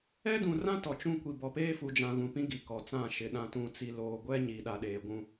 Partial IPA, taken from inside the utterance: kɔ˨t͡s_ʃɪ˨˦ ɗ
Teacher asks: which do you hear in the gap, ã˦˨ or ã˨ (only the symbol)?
ã˦˨